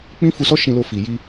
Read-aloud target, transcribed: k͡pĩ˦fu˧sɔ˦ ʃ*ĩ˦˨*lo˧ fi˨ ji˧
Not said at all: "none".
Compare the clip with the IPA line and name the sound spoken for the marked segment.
ĩ˧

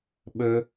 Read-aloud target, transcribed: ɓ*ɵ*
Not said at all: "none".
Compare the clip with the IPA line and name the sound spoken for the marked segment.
ɵ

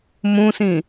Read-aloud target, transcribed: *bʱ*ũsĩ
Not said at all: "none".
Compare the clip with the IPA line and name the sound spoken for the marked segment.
m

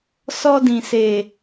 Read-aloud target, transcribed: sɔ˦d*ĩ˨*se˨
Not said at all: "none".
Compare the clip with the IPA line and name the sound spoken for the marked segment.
ĩ˨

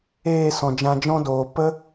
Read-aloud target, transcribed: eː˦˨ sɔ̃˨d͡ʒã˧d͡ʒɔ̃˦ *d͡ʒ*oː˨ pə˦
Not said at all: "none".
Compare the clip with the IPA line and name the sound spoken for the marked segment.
d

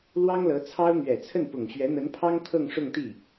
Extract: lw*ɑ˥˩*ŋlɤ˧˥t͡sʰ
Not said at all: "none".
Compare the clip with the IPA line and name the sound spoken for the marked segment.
ɑ˥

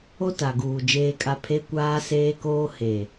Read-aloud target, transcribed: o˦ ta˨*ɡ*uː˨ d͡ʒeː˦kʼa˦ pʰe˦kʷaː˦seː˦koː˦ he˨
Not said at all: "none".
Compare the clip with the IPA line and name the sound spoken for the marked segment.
ɡ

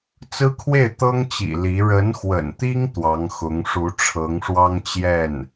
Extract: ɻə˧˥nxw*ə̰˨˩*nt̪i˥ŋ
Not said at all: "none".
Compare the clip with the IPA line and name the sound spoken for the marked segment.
ə̰˨˩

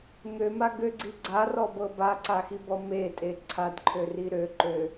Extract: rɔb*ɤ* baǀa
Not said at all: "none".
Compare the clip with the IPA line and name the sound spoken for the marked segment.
ɤ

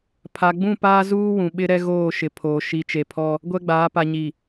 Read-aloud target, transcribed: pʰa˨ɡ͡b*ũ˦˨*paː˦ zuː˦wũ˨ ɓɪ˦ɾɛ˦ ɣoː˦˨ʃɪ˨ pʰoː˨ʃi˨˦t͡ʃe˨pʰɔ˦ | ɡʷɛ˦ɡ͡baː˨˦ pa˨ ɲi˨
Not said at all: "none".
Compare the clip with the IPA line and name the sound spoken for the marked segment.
ũ˦˨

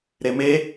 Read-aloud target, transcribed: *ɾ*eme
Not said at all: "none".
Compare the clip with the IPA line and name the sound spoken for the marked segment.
ɾ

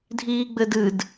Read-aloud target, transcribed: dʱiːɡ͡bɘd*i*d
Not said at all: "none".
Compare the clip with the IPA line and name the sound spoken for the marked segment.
ɨ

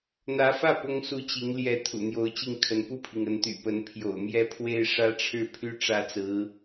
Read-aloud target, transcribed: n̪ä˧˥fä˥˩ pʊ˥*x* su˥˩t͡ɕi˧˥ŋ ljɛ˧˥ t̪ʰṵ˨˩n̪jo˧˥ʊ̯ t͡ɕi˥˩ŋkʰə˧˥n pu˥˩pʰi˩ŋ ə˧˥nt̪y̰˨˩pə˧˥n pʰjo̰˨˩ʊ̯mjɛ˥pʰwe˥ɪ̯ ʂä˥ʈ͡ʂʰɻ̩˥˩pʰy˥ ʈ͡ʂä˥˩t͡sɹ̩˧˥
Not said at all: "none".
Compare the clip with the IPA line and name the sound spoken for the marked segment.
ŋ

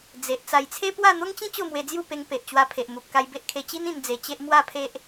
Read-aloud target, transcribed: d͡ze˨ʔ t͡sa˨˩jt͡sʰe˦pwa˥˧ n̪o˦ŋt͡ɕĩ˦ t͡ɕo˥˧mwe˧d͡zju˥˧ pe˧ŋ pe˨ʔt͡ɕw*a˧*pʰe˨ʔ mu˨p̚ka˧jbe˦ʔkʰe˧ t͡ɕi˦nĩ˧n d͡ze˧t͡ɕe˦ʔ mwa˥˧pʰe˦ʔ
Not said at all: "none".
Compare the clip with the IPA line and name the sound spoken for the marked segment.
a˧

